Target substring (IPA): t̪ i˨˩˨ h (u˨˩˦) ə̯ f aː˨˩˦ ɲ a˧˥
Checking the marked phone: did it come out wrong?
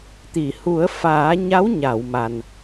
no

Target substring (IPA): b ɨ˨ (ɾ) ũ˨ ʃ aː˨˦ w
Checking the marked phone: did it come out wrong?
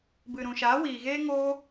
no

